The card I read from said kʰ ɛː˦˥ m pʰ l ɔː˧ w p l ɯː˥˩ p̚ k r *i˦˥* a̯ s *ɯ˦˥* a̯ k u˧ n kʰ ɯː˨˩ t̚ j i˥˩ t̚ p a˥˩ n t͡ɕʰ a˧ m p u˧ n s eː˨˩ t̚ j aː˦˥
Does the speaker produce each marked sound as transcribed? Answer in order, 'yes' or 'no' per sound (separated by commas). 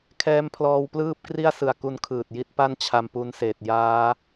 no, no